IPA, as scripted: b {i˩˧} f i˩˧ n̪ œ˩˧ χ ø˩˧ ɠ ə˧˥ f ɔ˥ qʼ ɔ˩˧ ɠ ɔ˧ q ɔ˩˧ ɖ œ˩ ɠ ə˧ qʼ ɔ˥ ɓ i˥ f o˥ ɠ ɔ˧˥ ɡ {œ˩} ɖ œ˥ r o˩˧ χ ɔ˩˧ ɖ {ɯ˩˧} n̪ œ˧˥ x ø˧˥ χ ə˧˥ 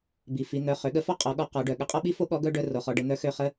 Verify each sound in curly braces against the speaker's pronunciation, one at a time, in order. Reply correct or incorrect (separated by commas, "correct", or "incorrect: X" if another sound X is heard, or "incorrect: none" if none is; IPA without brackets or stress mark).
incorrect: i˩, incorrect: œ˥, incorrect: ə˩˧